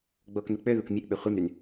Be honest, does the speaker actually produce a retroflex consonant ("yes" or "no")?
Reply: no